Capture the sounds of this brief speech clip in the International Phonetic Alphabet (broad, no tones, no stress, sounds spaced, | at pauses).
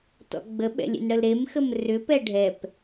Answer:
t ɔ̰ ɡ͡b ə ɓ ɛ̰ lʲ ḛ n ɽ ə l ɾ e m x ə m r ʏ p ɛ ɖʱ ɛ p